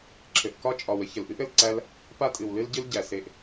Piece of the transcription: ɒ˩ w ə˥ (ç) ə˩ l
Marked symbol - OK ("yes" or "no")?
yes